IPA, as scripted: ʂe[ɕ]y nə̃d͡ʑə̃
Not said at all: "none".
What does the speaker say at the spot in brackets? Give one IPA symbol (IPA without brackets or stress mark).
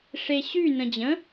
ɕ